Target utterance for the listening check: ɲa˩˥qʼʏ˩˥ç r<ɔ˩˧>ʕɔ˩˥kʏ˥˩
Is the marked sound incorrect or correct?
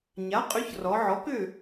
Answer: correct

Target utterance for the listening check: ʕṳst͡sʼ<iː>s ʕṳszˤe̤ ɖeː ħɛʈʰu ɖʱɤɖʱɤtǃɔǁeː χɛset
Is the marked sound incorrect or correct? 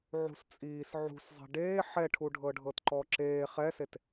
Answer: correct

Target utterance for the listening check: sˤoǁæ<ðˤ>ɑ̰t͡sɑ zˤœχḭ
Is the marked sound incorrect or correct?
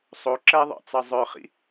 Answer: correct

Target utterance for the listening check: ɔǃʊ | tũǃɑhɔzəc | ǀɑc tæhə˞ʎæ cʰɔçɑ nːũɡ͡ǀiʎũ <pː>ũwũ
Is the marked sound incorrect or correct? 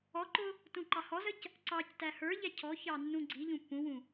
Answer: correct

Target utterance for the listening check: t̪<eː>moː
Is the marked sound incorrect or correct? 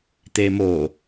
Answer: correct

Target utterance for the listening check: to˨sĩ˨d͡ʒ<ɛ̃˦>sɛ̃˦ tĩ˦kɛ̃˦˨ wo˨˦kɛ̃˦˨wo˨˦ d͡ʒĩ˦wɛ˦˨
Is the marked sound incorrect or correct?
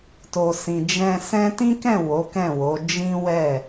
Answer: incorrect: ɛ̃˧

